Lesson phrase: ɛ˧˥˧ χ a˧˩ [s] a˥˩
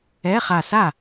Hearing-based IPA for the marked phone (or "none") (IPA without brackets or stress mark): s